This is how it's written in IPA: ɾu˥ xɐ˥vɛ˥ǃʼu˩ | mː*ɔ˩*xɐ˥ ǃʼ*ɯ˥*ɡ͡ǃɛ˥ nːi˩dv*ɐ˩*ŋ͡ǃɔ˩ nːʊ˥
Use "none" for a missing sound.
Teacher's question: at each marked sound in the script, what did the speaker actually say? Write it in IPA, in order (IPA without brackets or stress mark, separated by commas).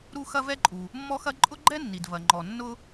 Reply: ɔ˥, ʊ˥, ɐ˩